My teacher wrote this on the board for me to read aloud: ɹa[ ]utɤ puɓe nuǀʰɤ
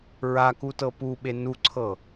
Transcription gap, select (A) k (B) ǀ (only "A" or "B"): A